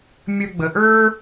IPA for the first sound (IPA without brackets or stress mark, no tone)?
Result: mʲ